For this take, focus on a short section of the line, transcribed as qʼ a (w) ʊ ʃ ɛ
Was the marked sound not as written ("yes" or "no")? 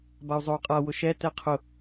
no